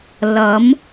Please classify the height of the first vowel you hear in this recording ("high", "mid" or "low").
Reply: low